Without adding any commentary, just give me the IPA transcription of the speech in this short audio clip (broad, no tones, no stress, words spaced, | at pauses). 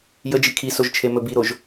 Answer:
jəd͡ʒi kʰisoʒt͡ʃʰemɵ biɾoʒ